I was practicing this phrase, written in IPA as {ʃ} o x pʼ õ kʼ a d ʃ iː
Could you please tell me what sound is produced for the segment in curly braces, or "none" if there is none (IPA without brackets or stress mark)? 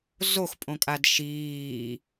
z